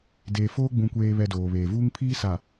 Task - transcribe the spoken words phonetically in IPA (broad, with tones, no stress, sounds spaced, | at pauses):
d eː˨ f oː˦ ɡ͡b ũ˨ kʷ eː˨ β ɛ˨ d oː˨ β eː˨ v uː˦ ŋ pʰ iː˦ s a˨